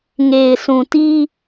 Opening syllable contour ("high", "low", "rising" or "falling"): low